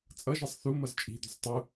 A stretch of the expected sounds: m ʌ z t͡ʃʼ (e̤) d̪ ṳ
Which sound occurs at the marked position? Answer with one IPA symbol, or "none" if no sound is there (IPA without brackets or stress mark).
i̤